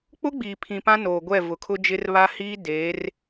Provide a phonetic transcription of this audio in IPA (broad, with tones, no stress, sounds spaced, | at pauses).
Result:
k͡p ʊ˦ ɡ͡b iː˨ pʰ ĩ˨ p ã˦ n oː˨ ɡʷ ɛ˦˨ v ʊ˨ kʰ ʊ˦ d͡ʒ ɪ˦ r β a˦ h iː˦ d eː˨˦ r